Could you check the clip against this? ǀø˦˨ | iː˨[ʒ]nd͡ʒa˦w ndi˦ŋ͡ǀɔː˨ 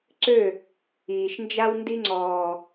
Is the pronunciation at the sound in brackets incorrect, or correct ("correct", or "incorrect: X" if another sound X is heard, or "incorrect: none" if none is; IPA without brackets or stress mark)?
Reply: incorrect: ʃ